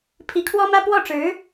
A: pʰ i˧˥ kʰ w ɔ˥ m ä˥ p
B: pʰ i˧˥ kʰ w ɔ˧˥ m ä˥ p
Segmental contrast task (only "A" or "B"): A